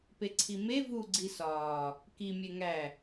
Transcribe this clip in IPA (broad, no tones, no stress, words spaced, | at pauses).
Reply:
peǀʰime vu ɡ͡ǀisɒː | kimʲe ŋæ